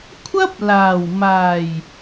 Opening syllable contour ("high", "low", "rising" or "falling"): high